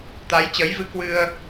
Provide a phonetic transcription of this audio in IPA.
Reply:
t̪a˨˦jt͡ɕəː˨˦jvɨ˧ kwɨ˧ə̯

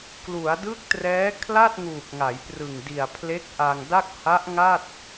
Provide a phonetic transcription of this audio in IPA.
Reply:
klu˩˦a̯dɯ˦˥k̚trɛː˦˥ kʰla˥˩t̚ŋuː˨˩k̚ŋa˩˦jprɯ˨˩ŋ di˨˩a̯pʰle˦˥k̚ʔa˧ŋda˥˩k̚ ha˦˥ʔŋa˥˩t̚

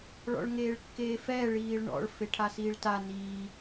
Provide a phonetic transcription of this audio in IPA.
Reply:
ɭɔ̰ɭŋeːɭkːeːfɛː ɭiːɭɳɔ̰ɭ feʈʰasiːɭta niː

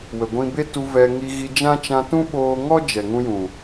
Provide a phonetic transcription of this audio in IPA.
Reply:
wə˨ɡʷĩ˧be˦tu˧ vɛ˧ ŋi˧ɣi˧d͡ʒã˦ t͡ʃã˧tũ˦ ɓoː˧ŋɔ˦ d͡ʒɛ˨ŋũ˧jũ˨

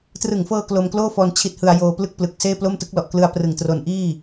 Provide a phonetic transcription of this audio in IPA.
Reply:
trɯ˨˩ŋfɤː˧ klo˧mkloː˥˩fɔː˧n t͡ɕʰi˦˥t̚hɯ˧a̯ joː˧ plɯ˥˩k̚plɯ˨˩k̚seː˥˩ plo˥˩mtɯ˦˥k̚lɔ˨˩ʔ klɯ˦˥a̯prɯ˨˩ŋ tro˧n ʔiː˥˩

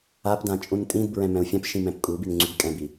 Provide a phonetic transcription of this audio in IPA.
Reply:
apdã t͡ʃʼũntʼĩdbɹɛ̃ mɛ̃u̯fʲãpʃĩ mɛ̃pkʼubin ŋ͡ǀyɡkʼɛ̃bi

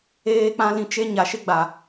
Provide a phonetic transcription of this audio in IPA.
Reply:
eː˦k͡pã˦lĩ˦ t͡ʃe˦ ɲa˨ʃɪ˦ɡ͡ba˨

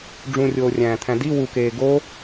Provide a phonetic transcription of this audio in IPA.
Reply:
ɖ͡ʐũrʲoːrʲæ̃ːt̪ʰæ̃ di wukeː ɡo

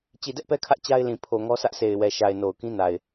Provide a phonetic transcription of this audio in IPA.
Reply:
t͡ɕi˨dɛ˦ʔpɛ˦kʰä˦ʔ t͡ɕa˦ɪ̯lĩ˨ pʰo˨ ŋɔ˦sä˦ʔsʰe˨ɪ̯ wɛ˨ʃa˨ɪ̯ no˨ʊ̯kĩ˦ na˨ɪ̯

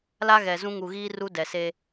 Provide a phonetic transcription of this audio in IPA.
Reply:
la˦ɣɛ˨zũ˦ ŋu˨ɣiː˦ ru˦dɛ˨se˦

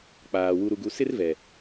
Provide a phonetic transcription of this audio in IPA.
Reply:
k͡paː˨ wu˨ɾu˨ɡu˨ sɪ˦rvɛ˨

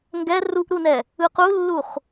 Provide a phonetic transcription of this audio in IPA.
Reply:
ŋɡɛ ruʔɾunɛ | ɯqulːuχ

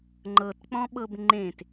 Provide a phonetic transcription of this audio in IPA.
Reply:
ŋ͡ǃɤtk͡pɔ̃ɓɤb ŋ͡ǃẽt

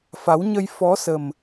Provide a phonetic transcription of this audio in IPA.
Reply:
fa˨˦wɲə˧j fɔ˨˦sə˨˩m

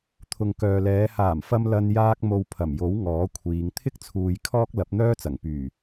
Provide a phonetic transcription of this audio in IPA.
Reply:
t̪ʰʊ˨ŋkœː˨lɛː˨˧ haː˨˩mfɐ˧m lɐ˧n jaː˧k̚mo˨w pʰɐ˨˩mjo˨˥w ŋɔː˨˥kʷʰiː˨˧ŋ t̪ʰɪ˥k̚t͡sʰuː˨j kʰɔː˥k̚lɐ˨˥p̚n̪œː˥t͡sɐ˨˩ŋ pyː˨˩

